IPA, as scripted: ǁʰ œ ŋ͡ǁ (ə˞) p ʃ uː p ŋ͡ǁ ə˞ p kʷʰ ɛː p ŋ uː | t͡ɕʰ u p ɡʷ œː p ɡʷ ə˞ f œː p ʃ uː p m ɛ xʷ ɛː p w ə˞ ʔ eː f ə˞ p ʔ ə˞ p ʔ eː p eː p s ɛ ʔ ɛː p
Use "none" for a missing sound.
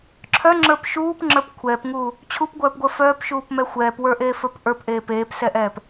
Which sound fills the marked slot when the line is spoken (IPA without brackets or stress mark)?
ə˞